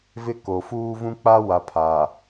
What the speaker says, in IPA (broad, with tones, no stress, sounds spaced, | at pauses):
v ɪ˦ k o˨ f uː˦ v ũ˦ k͡p a˦ w a˨ pʰ aː˨